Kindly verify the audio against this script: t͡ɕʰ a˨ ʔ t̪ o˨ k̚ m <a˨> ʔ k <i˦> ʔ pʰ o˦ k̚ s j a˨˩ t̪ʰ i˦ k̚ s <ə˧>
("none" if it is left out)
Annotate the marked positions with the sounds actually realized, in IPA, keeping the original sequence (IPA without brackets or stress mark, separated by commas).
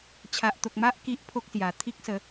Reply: a˦, i˦, ə˨˦